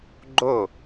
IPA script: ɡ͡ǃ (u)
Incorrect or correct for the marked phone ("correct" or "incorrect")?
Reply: incorrect